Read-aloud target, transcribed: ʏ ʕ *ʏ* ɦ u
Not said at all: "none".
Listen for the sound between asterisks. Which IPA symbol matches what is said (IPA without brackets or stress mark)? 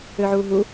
u